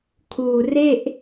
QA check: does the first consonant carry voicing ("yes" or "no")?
no